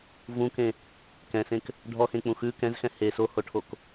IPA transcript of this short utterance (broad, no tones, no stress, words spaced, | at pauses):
vũkẽ | kɛ̃sẽk | ɖʱɔxẽk͡pũ xʉ kɛ̃zxɛ̃ he sohoʈʰok